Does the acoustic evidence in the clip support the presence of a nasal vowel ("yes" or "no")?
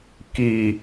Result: no